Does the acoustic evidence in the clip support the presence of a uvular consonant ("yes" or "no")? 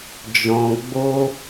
no